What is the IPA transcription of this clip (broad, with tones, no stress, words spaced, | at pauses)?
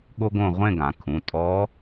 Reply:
ɠo˥ɡõ˥˧ ʁʷẽ˥˧ɡã˩˧kʰũ˩˧˩ tʼɔ˧˥